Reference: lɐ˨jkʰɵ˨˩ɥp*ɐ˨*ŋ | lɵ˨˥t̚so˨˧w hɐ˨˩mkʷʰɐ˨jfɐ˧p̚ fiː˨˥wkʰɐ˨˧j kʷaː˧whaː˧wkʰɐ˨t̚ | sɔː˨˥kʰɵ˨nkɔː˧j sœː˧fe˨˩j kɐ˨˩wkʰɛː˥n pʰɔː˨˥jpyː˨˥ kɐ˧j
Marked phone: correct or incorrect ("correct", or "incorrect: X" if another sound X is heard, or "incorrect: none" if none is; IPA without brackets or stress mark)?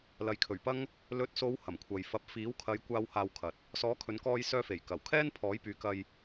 incorrect: ɐ˥